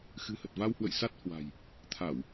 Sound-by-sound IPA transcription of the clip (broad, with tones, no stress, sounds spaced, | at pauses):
x ɨ̤˨˩ h ə˨˩ t̚ v a˧ w h w ə̰˧˨ j s a˦˥ t̚ h w a̤˨˩ j | t̪ʰ a˧˩˨ w